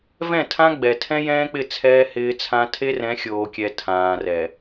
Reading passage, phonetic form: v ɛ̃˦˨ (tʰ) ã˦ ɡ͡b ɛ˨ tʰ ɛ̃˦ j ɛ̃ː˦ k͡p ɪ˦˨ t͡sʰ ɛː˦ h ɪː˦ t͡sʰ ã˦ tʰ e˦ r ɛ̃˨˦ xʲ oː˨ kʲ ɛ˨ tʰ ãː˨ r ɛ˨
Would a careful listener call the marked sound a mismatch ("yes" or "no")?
no